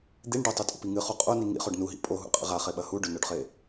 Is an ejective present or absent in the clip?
present